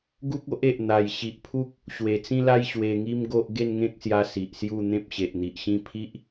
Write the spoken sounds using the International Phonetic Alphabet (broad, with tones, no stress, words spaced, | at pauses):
ɡu˦k̚o˦ʔe˨ʔ n̪a˨˩j ɕi˨ʔpʰu˦k̚ | ɕwe˨˩t͡sĩ˦la˦j ɕwe˧ŋi˦mɡo˦ʔ ɡe˥˧nŋẽ˦k̚sja˧ si˨ʔsju˥˧ n̪ẽ˦p̚ɕe˨ʔn̪i˨ʔɕĩ˥˧ pʰi˦ʔ